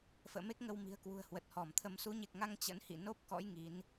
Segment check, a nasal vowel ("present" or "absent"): absent